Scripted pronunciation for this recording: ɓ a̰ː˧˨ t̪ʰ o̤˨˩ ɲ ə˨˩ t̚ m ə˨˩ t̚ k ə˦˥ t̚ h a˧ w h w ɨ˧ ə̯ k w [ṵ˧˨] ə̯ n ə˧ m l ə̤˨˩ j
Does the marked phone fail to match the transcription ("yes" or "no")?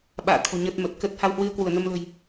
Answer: yes